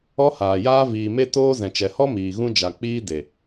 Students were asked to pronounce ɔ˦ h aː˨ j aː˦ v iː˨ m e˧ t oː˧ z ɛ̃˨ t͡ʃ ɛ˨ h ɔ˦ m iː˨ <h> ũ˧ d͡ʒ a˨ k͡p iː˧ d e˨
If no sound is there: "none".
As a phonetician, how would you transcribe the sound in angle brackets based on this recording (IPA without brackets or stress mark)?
ɣ